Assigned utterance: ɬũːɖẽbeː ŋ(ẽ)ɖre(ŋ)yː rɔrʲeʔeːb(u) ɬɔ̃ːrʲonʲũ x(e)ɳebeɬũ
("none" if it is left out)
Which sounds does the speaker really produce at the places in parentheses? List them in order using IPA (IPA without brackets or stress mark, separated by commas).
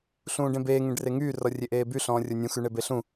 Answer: ẽ, ŋ, y, y